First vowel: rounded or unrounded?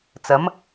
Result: unrounded